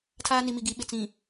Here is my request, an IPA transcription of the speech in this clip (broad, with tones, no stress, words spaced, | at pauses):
tʰaː˦ni˨mi˨ ɡi˨ɓɪ˨t͡sĩ˨